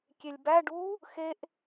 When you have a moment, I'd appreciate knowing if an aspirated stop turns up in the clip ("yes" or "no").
no